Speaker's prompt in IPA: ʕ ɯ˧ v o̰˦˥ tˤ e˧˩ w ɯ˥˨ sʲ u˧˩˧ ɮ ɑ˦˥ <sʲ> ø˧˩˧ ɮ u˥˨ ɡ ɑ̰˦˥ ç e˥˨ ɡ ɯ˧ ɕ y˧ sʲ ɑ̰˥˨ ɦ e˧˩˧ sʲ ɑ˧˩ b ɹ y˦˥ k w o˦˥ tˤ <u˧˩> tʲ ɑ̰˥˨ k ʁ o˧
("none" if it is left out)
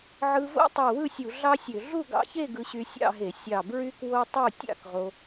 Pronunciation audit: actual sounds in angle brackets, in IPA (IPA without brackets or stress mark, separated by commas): sʲ, u˥˨